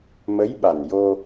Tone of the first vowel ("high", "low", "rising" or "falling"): rising